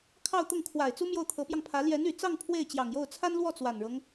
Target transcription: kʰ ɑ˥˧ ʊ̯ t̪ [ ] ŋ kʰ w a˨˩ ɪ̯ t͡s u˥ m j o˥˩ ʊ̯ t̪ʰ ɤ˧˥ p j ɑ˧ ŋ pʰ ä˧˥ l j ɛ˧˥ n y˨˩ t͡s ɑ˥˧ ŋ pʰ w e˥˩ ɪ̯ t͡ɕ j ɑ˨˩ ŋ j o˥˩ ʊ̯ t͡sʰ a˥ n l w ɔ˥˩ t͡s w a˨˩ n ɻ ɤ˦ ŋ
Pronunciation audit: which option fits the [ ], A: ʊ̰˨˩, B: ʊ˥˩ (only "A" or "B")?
B